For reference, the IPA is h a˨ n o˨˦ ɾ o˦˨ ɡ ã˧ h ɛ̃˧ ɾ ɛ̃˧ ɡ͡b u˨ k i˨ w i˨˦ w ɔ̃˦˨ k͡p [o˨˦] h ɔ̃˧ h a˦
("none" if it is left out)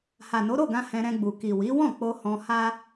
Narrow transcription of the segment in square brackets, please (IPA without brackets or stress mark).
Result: o˧